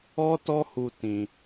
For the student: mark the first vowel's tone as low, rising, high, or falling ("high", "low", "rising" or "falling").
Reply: high